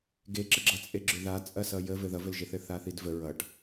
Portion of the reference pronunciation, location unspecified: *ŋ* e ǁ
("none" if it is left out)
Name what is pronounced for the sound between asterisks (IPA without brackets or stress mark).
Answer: ɡ